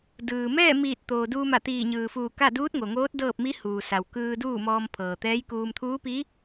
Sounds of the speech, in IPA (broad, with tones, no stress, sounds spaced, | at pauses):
d ɯː˩ m ɛː˥˨ m iː˧˩ t̚ t̪ oː˩ d uː˧ m a˧˩ t̪ iː˧˩ ɲ ɯː˩ f uː˧˩ k a˥˨ d uː˧˥ t̚ ŋ o˩ ŋ oː˧˥ t̚ d ɤː˥˨ p̚ m i˧˥ h uː˩ s a˩ w k ɯː˧ d uː˥˨ m ɔː˧ m pʰ ɤː˩ t̪ ɛː˧˥ j k uː˧ m t̪ʰ uː˧˥ p i˧˥